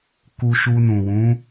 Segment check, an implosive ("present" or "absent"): absent